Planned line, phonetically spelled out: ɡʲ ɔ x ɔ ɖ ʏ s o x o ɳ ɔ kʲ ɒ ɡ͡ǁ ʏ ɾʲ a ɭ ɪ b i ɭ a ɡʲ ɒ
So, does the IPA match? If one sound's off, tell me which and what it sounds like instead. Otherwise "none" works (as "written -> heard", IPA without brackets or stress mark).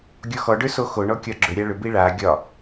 ɪ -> ʏ